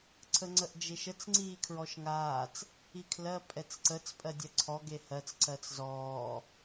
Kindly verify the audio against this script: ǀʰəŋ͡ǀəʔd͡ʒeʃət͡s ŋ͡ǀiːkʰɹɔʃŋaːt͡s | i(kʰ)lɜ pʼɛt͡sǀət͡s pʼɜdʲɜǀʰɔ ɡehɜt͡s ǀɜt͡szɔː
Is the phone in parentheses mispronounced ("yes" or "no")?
no